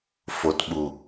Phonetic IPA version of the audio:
f o˨ t ɓ u˨

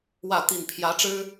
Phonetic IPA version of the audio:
w ä˥˨ t̪ i˨˩ n pʰ j ä˨˦ ʈ͡ʂ ɻ̩˦

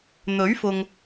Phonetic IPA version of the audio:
n̪ ɵ˨˥ ɥ f ʊ˨ ŋ

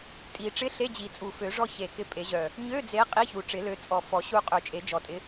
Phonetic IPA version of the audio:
tʼ i˨˩˦ ʈ͡ʂ ɪ˧˥˧ ɬ e˧˥˧ d͡ʑ i˨˩˦ t͡sʼ u˨˩ f ø˨˩˦ ʐ ɔ˦˨ ç e˨˩ k ɪ˦˨ pʼ e˨˩˦ ʑ œ˨˩ | ɲ ø˧˥˧ d͡z e˨˦ qʼ i˧˥˧ ç u˨˩ ʈ͡ʂ ɪ˨˩˦ l ø˨˦ t͡sʼ ɔ˨˩ f ɔ˨˩˦ ɕ u˦˨ qʼ ø˨˩˦ t͡ʃʼ e˨˩˦ d͡ʒ ɔ˨˩ tʼ ɪ˨˦

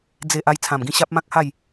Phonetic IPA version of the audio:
d͡z e˨ ʔ a˧ j t͡sʰ ã˨˩ m ɡ ĩ˧ ɕ a˦ p̚ m ã˦ k̚ h a˥˧ j

